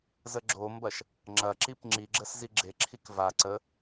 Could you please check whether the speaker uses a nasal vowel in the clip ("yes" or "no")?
no